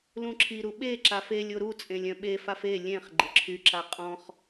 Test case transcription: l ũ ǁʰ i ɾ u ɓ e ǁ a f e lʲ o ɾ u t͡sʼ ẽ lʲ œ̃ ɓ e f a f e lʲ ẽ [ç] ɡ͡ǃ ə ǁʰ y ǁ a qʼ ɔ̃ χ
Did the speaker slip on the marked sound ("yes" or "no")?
yes